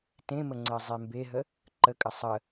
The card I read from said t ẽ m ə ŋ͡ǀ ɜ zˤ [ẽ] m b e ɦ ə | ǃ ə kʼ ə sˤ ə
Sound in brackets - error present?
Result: yes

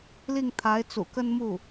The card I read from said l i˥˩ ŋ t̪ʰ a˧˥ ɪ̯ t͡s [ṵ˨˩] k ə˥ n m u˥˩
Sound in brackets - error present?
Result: no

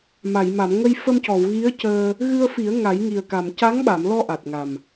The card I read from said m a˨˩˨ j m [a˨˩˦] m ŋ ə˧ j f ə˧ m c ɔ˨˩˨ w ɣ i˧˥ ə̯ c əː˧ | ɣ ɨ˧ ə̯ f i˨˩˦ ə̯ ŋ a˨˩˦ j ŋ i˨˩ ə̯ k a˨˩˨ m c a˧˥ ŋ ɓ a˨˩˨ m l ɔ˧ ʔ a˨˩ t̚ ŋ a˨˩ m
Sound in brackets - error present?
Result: yes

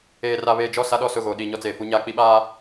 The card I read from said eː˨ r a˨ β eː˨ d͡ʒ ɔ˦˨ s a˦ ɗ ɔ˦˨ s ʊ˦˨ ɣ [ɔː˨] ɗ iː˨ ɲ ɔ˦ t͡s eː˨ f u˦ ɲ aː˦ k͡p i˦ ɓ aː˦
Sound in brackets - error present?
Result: yes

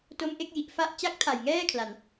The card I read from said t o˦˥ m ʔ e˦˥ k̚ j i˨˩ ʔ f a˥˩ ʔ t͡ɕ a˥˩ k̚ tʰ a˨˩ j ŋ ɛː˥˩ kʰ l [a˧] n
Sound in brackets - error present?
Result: no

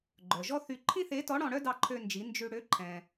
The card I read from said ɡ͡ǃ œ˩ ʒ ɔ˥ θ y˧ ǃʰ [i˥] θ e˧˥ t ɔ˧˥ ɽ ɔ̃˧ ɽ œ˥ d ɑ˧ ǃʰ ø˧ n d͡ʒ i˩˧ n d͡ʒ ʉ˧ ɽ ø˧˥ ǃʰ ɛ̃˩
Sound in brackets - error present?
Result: yes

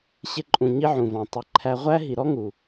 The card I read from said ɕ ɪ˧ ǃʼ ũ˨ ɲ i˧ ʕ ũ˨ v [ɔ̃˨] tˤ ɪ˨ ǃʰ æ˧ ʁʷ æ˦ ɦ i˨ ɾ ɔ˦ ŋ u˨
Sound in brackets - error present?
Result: no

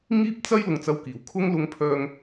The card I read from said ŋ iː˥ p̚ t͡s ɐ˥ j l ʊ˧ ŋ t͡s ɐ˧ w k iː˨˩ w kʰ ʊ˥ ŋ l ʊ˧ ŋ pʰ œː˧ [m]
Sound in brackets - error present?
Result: yes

